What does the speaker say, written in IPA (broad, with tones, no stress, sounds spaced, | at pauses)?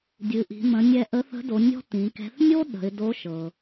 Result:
dʲ ɨ˩˧ ʔ i̤˩˧ m ə̃˩˧ nʲ ɛ˧ ʔ ə˧˥ θ ə̤˧˥ d o˩˧ nʲ ɔ̤˥ t ĩ˩˧ k ɛ̤˧˥ θ nʲ o˥ ɗ ə̤˩˧ ɪ̯ d o˧˥ ʃ ɤ˩